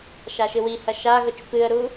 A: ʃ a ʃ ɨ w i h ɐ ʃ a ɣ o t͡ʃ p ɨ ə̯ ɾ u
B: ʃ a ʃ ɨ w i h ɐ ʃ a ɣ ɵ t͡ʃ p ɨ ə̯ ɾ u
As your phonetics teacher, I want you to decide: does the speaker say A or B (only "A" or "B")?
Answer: B